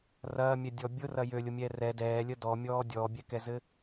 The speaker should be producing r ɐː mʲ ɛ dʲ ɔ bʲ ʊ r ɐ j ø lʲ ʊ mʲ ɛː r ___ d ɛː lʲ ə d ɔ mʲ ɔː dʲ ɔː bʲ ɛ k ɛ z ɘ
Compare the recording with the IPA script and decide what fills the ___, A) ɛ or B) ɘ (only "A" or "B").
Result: A